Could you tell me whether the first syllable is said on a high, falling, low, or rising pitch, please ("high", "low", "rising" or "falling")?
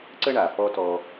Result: high